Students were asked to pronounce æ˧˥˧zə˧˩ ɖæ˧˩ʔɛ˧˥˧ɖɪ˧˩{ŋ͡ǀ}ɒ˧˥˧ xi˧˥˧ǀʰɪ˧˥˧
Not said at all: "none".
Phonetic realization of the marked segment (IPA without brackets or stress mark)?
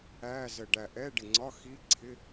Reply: ŋ͡ǀ